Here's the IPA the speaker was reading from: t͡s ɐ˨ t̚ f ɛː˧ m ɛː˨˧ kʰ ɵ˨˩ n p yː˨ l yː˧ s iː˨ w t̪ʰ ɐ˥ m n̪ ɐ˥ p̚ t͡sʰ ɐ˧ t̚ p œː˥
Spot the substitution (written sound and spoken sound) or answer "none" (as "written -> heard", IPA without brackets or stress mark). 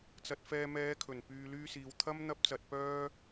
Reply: t͡sʰ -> t͡s